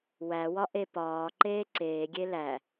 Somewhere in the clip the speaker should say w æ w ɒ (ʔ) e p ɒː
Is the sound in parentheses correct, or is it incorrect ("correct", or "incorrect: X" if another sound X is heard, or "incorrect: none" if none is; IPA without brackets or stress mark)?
correct